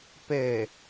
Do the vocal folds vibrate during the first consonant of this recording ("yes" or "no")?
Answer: no